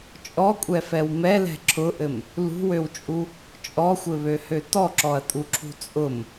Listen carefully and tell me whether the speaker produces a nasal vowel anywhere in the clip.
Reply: no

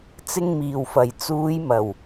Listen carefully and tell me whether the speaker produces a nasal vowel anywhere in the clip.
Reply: no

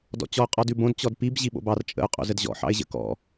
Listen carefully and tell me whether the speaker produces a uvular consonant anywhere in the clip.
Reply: yes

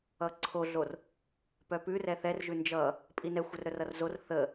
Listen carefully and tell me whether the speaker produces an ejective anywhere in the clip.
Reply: yes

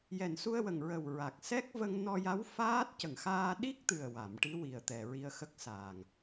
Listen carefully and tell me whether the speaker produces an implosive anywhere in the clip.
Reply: yes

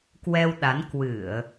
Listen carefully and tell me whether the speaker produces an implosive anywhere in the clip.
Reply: yes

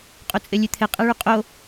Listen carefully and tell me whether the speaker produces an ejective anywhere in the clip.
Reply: yes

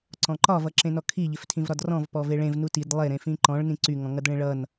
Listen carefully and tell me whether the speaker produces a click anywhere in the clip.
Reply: yes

